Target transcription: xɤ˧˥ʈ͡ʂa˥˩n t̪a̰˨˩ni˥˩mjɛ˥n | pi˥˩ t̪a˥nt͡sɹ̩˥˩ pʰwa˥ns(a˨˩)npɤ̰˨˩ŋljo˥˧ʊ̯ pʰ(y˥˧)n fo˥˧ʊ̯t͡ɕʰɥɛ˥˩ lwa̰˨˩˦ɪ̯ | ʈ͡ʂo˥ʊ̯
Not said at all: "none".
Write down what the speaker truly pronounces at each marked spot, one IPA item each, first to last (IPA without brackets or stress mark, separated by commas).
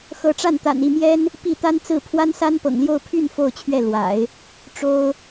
a˥, y˥˧